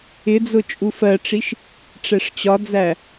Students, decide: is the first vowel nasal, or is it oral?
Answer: oral